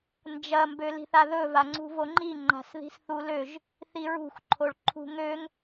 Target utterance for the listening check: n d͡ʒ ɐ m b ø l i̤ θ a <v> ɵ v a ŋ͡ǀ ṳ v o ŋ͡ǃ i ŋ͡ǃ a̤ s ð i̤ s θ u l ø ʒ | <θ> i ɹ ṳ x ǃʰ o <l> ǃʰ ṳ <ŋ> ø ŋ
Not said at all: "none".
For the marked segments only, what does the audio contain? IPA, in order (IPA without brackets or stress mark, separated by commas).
ð, θ, ɭ, ŋ